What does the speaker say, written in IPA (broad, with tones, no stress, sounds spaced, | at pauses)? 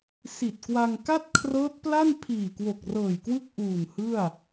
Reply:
s i˨˩ t̚ k w a˧ ŋ k a˥˩ t̚ kʰ r ɤː˦˥ t̚ p l a˥˩ n pʰ iː˨˩ k w o˨˩ k̚ r ɤː˨˩ j k w ɯ˥˩ k̚ ʔ uː˨˩ n h ɯ˥˩ a̯